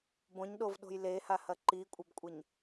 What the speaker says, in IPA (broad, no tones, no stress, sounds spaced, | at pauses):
b õ ɲ ɗ o v ɗ o̤ j l e h a h ɐ ǃ i kʷʼ ɐ b kʷʼ ɐ ɲ